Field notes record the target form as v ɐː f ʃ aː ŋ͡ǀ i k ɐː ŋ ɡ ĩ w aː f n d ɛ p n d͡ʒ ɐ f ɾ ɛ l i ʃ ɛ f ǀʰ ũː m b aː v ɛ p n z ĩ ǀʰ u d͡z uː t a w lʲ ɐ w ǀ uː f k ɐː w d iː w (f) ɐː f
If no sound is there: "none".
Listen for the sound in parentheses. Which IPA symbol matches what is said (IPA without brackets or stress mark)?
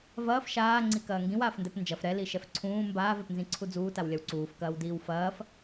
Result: f